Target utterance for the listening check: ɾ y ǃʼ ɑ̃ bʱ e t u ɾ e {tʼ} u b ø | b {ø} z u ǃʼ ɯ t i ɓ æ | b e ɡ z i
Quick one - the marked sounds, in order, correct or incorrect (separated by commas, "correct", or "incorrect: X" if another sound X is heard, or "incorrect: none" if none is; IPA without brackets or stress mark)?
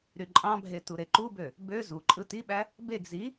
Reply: incorrect: ǃ, correct